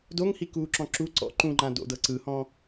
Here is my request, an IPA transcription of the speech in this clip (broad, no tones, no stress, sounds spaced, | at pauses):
d o ŋ h i k uː ǁ ɔ̃ ǁ u ǀ ɔ̰ ǃ ũ ŋ͡ǃ ã d o̰ d ɤ ǀ ɯ h ɔ̃